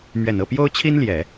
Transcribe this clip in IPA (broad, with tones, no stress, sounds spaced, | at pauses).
m ɥ ɛ˨˩ n ɤ˥˩ p j o˥ ʊ̯ t͡ɕʰ i˥ n l j ɛ˨˩˦